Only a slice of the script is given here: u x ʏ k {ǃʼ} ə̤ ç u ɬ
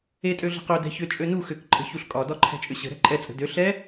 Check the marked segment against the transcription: correct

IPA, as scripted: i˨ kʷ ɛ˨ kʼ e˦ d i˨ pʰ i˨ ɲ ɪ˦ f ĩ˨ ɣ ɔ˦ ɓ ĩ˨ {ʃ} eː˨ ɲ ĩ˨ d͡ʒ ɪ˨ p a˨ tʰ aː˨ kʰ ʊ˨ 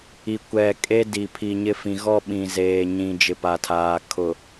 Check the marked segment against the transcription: incorrect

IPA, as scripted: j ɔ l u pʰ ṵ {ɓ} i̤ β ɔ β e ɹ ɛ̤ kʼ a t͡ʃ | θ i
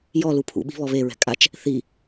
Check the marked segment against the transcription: correct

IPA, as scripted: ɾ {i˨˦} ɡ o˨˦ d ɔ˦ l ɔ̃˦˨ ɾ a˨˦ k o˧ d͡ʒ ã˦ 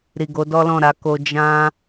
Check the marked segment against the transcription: incorrect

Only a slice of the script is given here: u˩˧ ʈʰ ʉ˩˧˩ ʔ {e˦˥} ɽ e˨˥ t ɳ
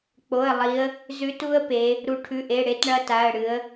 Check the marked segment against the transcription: incorrect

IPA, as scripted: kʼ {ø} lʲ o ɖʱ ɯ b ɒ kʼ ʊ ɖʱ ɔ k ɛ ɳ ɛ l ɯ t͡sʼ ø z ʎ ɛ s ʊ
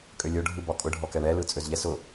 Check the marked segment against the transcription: correct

